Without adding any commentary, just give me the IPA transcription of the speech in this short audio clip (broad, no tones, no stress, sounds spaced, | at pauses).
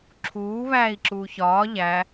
ǁʰ uː β æː i̯ ǁ uː ç ɒː ʎ æ